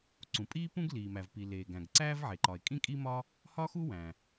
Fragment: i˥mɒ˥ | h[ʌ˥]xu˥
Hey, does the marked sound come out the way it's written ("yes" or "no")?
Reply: no